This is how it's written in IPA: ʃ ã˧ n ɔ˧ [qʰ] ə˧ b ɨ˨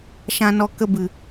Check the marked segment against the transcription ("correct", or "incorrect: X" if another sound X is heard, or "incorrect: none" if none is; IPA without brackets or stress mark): incorrect: k